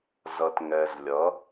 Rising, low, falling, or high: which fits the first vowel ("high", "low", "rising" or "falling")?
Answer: low